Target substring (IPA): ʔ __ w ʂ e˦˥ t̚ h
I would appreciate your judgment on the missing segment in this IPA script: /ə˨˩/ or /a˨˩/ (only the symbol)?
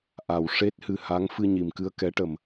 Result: a˨˩